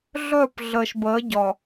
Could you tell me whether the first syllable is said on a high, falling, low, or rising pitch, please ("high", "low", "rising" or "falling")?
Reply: falling